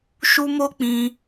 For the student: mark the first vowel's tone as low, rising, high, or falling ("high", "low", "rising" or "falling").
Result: high